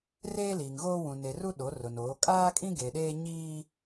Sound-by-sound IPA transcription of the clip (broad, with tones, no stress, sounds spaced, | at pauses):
r eː˦ l iː˨ ŋ ɣ oː˦ w ũ˨ n e˨ r u˦ ɗ o˨˦ r ʊ˨ n oː˨˦ kʼ aː˦ kʼ ĩ˦ ɡ e˨ ɗ eː˦ ɲ iː˦